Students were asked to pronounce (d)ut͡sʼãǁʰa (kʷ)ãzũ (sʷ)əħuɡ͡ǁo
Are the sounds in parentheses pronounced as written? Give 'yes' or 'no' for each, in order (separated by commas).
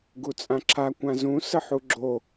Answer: no, yes, no